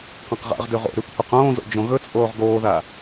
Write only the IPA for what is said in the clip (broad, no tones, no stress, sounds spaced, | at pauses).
q ã q ʁ a̰ ʁ d ʉ ʁ o̰ ɾ ʉ kʷʰ ɨ q õː z o̰ d͡ʒ õ ɣ ɵ t͡sʼ oː ʁ ɡ oː ð a